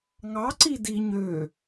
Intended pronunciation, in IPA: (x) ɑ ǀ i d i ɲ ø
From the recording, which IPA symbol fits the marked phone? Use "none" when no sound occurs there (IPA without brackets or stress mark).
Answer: ŋ